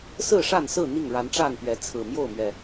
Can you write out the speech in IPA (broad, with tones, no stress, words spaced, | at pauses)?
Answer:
sɹ̩˥˨ʂa˥˨nsɹ̩˥˨ n̪i˥˨ŋɻa˨˦nʈ͡ʂa˥˨npɥɛ˨˦ t͡sʰɹ̩˨˩mjo˥˨ʊ̯mɥɛ˨˩